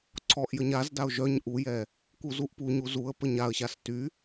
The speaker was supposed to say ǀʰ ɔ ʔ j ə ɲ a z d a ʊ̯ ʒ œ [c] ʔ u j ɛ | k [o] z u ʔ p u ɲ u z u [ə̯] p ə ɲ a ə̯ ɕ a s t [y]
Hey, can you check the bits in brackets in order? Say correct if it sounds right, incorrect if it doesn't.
incorrect: ɲ, incorrect: u, correct, correct

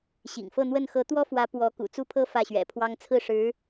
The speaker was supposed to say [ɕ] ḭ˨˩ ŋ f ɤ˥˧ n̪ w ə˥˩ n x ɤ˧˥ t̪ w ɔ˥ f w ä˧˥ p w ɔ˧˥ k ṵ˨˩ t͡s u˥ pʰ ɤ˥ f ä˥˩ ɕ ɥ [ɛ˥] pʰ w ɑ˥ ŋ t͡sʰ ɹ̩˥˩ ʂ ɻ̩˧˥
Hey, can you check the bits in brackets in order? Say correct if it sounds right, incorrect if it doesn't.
correct, incorrect: ɛ̰˨˩

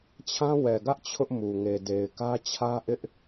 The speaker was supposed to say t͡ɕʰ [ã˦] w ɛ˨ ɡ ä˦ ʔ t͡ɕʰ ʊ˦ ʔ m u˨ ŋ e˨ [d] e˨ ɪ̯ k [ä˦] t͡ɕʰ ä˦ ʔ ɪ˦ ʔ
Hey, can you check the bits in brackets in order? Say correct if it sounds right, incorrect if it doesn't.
correct, correct, correct

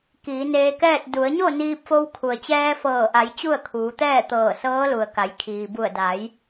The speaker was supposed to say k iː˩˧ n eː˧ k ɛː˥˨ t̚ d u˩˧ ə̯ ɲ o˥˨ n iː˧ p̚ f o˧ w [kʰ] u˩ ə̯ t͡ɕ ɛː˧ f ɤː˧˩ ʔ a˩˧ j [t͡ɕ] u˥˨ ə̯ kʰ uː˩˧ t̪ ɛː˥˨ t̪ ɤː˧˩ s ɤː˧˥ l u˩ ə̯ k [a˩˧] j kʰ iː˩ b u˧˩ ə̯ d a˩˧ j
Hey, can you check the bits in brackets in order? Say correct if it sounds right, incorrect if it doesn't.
correct, correct, correct

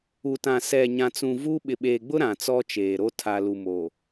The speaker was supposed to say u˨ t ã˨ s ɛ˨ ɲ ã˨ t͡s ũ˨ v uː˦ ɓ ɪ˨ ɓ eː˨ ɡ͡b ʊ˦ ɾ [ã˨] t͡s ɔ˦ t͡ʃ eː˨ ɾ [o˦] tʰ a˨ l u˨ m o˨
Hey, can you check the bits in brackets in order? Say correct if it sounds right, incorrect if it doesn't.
correct, correct

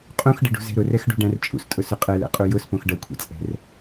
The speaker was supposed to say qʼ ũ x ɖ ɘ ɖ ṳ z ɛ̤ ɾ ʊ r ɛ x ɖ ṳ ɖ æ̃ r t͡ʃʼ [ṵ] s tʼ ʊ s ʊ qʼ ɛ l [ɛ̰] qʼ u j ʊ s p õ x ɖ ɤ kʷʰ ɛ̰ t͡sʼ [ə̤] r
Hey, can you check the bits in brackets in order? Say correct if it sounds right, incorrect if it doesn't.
correct, correct, incorrect: ɛ̤

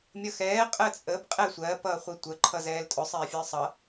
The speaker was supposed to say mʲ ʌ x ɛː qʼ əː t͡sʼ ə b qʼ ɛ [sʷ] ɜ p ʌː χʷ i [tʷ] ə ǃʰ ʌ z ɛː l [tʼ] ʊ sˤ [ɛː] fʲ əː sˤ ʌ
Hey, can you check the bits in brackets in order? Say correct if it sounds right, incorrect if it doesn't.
correct, correct, correct, correct

